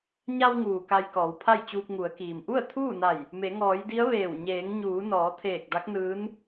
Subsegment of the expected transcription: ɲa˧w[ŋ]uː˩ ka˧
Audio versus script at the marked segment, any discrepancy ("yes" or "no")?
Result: no